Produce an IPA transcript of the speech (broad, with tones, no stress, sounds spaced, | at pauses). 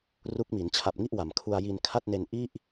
r u˦˥ k̚ m i˩˦ n t͡ɕʰ a˨˩ p̚ ŋ i˥˩ ʔ w a˩˦ m kʰ u˧ a̯ j i˧ n kʰ a˥˩ t̚ n e˧ n ʔ i˥˩ ʔ